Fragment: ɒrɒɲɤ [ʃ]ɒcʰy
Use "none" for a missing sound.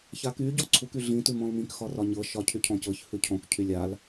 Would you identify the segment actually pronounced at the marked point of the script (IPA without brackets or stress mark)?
ʃ